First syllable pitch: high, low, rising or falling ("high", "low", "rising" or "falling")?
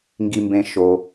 high